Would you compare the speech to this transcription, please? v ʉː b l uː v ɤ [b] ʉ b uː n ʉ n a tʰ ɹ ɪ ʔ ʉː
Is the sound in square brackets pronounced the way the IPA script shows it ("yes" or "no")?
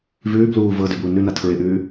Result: no